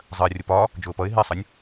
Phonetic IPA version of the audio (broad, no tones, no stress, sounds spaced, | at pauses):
zˤ ɜ rʲ ʊ p ɒ | d͡ʒ ʊː p ʌ ɪ̯ ɦ i sˤ ʌ nʲ